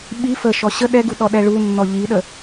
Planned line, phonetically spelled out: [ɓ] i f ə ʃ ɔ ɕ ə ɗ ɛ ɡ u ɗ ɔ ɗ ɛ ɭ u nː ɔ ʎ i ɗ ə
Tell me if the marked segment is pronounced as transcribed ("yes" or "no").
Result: yes